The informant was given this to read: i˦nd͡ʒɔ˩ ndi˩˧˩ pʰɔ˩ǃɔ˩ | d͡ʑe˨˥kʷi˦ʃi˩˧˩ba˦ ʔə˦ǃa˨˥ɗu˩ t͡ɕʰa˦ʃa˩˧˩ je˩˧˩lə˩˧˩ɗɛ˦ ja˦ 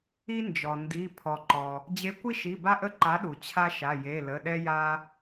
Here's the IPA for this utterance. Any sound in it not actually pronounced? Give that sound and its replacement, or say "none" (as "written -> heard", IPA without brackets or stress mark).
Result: none